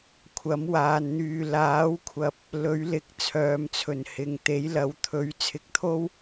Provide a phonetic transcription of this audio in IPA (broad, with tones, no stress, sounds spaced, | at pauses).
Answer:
kʷʰ ɐ˨˥ m w aː˨ n n̪ yː˨ l aː˨˥ w kʷʰ ɐ˨ p̚ | l ɵ˨˥ ɥ l ɪ˨˥ k̚ t͡sʰ œː˨ m t͡sʰ ɵ˨˩ n h ɪ˨˩ ŋ t̪ e˨˥ j l ɐ˨˥ w t̪ʰ ɵ˨˥ ɥ t͡sʰ ɪ˨˥ k̚ t̪ʰ o˥ w